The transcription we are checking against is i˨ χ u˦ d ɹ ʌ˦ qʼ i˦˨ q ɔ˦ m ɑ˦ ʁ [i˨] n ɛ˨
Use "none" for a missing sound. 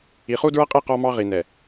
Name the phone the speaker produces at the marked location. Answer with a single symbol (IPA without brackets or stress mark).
i˨